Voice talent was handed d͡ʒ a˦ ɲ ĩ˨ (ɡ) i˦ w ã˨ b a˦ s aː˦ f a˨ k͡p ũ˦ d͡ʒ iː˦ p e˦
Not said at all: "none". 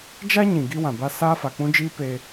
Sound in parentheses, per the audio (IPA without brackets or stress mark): ɡ